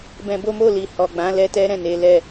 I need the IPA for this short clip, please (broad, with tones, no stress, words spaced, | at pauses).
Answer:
bɛ̃˧bo˦mo˦˨li˨ hɔ˨ɡ͡bã˨˦ lɛ˦tɛ˦ɾɛ̃˦˨ ne˨˦lɛ˦˨